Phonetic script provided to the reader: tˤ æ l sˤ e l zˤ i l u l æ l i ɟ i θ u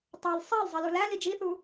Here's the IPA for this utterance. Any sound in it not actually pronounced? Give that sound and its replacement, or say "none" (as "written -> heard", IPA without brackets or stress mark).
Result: ɟ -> d͡ʒ